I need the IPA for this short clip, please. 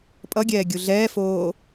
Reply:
pʼ ʌ ɡʲ ɛː ɡʲ u ɮ ɛː f oː

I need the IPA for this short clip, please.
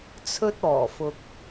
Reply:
t͡sʰ ɵ˥ t̚ ɔː˨˩ f ʊ˨ k̚

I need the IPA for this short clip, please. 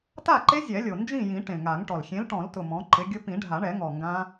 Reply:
t a˥˨ ǃ e˦˥ zʲ ɛ˨˩˦ lʲ o˨˩ n d͡ʒ ĩ˥˨ j ĩ˨˩˦ ʈ ẽ˨˩ ŋ a˨˩˦ ŋ ʈ ɔ˨˩ l xʲ ẽ˨˥ l ʈ ɔ̃˨˩˦ l t ʊ˨˩ m ɔ̃˨˥ ǃ ɪ˨˥ ɡʲ ʊ˦˥ p ĩ˨˩˦ ɖʱ a˨˩˦ ɳ ɛ˨˩˦ ŋ ɔ˨˩ ŋ ɡ ã˦˥

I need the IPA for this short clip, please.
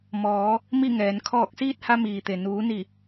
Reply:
m ɔː˩˧ | m i˥˨ ŋ ɛː˩˧ n kʰ ɔː˧˩ k̚ s iː˥˨ t̚ h a˧ m iː˩ t̪ e˩ n uː˩˧ n i˧˩

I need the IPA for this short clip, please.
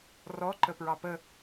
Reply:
r ɔ ǃ ə p ɹ ɑ p ə

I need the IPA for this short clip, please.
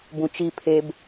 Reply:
b ũ t͡ʃ i pʰ e b

